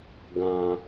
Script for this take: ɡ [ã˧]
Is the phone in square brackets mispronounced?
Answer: no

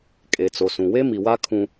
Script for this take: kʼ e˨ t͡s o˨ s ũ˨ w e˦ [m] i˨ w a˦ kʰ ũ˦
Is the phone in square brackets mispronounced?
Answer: no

